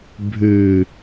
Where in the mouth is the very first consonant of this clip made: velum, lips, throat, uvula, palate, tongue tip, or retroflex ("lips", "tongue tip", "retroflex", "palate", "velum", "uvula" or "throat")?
lips